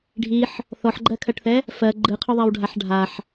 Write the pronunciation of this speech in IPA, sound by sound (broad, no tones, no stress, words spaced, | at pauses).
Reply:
ɖʱiħ | θɔħɡ͡ǃɜkʰɜʈθɛ | fɜ ɡ͡ǃɯqʰʊðˤɛwɖʱaħ ɖʱaħ